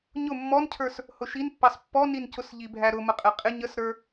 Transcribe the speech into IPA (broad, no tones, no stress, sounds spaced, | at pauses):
ɲ ʊ mː ɔ n cʰ ə˞ s | h ʊ ʃ i n pː ɑ s pː ɔ n i n c ʊ s ʎ i bʱ æ ɾ ʊ m ə qʼ ɛ qʼ ɪ ɲ ə s ɾ ə˞